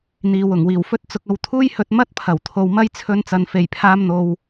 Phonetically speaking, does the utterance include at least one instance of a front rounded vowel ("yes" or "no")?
no